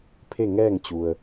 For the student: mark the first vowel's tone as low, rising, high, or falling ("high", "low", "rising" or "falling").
falling